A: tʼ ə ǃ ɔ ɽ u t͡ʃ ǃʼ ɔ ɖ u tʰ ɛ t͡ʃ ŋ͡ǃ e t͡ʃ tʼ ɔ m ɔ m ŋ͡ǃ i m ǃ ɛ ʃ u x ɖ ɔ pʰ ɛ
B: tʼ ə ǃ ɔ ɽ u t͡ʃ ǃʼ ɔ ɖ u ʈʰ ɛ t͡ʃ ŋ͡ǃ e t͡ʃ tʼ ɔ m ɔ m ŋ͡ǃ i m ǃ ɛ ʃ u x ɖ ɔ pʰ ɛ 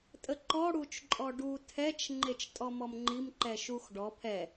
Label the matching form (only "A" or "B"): A